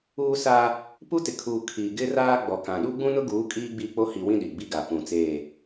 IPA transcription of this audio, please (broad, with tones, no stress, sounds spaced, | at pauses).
uː˦ s a˦ | p u˦ t ɪ˨ kʰ uː˨ kʰ i˨ ɡ ɪ˦ r aː˦ ɡ͡b ɔ˨ k ã˨ ɗ u˦ ɡ͡b ũ˦ n ʊ˦ ɡ uː˨˦ kʼ iː˦ ɡ͡b i˦˨ k͡p o˦ h i˨ w ĩ˦ ɗ i˨ ɡ͡b i˦ ɡ a˨ p ũ˨ t͡s eː˦˨